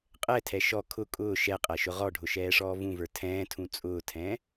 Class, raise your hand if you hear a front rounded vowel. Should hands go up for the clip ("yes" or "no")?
no